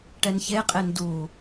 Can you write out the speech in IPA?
ʈɛnçeqʼen du

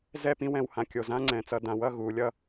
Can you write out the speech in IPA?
zɛ˥˧pĩ˥wɛ̃˧w hã˧kʲo˧˩ zã˥ŋ͡ǀɛ̃˩˧t͡sʌ˩˧ dã˩˧wʌ˥˧ɣu˩˧ lʲʌ˧

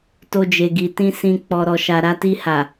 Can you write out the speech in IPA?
to˦d͡ʒe˧ɡi˧tĩ˦ sĩ˧ k͡pɔ˧ɾɔ˧ʃa˧ ɾa˧ti˧ha˨

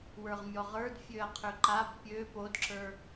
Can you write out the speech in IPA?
wə˞ʁmʲɔʁə˞d fʲøɐ̯qʰøǃab pʲø podǁə˞

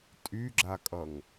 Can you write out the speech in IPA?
tʼyɡ͡ǁakʼʌŋ

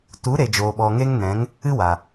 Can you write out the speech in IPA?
tu˨˦ ɾe˨d͡ʒoː˨ ɓɔ˨ŋe˦ŋ nɛ̃˨˦ŋ | ɨ˦ wa˨

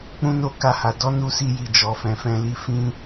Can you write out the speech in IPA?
k͡pũ˦no˦˨ka˧ha˨ dɔ˨˦nu˧si˧ji˨ d͡ʒɔ˨fɛ̃˨fɛ̃˧li˧ fĩ˦

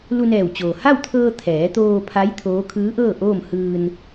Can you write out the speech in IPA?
lu˧nɛː˧˩wt͡ɕoː˩ ha˥˨wt̪ʰɤː˧ t̪ʰɛː˩˧t̪oː˧pʰa˧˥j t̪ʰoː˧˥ kʰɯː˧˥ʔɤː˥˨ ʔoː˥˨m hɯː˧n

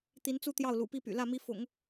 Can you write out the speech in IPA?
t̪i˧˥nt͡su˥˧ t̪jɑ˥˩ʊ̯lṵ˨˩pi˥˩py̰˨˩ lä˥˩mi˧˥ fʊ̰˨˩˦ŋ

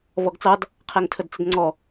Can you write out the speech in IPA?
vɔɡt͡sɑd | qʰæŋtʰədt͡sədŋ͡ǀɔ

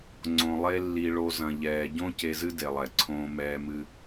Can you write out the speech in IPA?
ŋ͡ǀõ˨lˠe˧ lːi˧ɭo˧ zɐ̃˨ʎɛː˨ɟõ˦ ce˧zɨ˦de˨lˠɛ˨ ǀʰõː˧mɛː˧mɨ˧

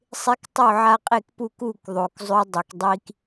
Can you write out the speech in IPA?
sˤe˦k tˤo˥˨ʕa˦qʼe˥˨kpu˥˨k u˥˨k ðˤo˨k zˤʉ˦ dˤɯ˨kdˤi˦k

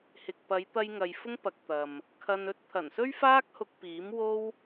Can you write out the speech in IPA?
hɪ˨k̚pɐ˨˧jt̪ɐ˧j ŋɐ˨jfʊ˥ŋpɐ˨k̚ t̪ɐ˨m | kʰɐ˧nɵ˥t̚ t̪ʰɐ˨˩nsɵ˥ɥfaː˥k̚hʊ˧k̚ piː˨˥mwo˥w

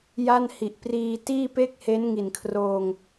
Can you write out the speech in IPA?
ja˥˩nhi˨˩ʔ priː˧ tiː˥˩pe˥˩k̚he˦˥n ŋi˨˩nkʰroː˧ŋ

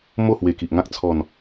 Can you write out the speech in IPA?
mo˥˧hwe˨˩ki˨ʔŋã˦k̚ t͡sʰɔ˨˩n

